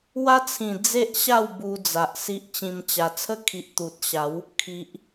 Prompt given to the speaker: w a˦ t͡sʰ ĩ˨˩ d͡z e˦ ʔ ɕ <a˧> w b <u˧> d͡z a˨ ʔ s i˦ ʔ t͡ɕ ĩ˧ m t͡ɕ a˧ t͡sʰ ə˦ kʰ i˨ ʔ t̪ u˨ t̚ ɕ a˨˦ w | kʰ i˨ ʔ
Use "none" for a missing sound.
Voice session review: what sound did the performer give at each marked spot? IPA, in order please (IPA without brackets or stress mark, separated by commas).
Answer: a˥˧, u˧